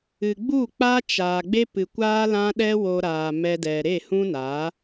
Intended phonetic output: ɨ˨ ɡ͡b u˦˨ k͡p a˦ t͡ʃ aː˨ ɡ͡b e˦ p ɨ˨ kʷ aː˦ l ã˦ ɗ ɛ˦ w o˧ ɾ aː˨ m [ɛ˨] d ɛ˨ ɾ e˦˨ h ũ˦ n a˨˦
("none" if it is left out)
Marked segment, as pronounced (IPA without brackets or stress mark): ɛ˧